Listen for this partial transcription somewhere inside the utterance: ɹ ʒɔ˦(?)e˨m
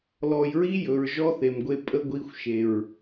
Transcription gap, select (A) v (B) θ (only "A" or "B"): B